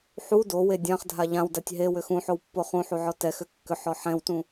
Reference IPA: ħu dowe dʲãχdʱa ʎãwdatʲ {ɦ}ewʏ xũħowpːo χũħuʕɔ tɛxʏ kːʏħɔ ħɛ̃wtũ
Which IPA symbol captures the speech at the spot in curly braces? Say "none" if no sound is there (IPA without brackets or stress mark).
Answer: ɦ